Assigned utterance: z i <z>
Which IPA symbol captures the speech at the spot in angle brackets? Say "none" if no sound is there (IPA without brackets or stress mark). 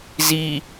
none